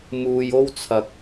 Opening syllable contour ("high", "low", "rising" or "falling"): low